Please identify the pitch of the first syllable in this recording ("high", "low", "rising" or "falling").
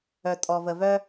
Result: low